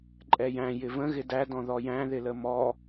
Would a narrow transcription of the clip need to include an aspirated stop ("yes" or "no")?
no